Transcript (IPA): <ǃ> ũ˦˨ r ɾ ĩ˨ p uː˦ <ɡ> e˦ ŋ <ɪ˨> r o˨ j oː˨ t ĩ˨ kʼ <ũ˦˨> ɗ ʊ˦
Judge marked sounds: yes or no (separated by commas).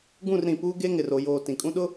no, yes, yes, no